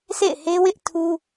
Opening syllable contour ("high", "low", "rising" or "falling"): falling